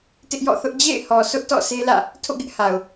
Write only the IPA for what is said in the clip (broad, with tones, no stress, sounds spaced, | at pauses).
t ɪ˦ ʔ j ɔ̰˦˨ θ ʊ˦ ʔ d͡ʑ ḛ˦˨ ɪ̯ h ɔ˨ sʰ ʊ˦ ʔ t ɔ̰˦˨ sʰ e˦ l ä̰˦˨ | tʰ o̰˦˨ ɡ ɪ˦ ʔ h a˨ ʊ̯